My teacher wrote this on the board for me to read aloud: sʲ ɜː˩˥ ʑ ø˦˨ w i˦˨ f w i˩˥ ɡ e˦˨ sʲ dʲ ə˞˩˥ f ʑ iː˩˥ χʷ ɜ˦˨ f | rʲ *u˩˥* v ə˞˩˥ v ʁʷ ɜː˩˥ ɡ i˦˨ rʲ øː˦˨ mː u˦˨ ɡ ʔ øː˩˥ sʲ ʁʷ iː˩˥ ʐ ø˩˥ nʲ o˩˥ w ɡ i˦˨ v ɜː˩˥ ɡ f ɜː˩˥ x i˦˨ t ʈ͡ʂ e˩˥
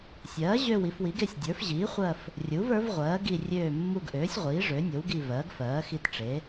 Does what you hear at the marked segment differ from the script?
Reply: no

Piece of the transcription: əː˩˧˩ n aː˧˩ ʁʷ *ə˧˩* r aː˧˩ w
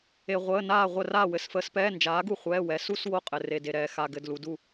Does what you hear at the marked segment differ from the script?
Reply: no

